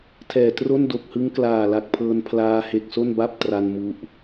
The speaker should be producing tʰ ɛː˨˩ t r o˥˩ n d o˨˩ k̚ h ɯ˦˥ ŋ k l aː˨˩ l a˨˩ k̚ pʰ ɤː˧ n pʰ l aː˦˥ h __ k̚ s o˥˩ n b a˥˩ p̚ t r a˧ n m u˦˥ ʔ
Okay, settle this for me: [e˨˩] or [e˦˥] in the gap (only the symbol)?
e˨˩